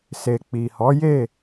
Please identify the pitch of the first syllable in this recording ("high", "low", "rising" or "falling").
low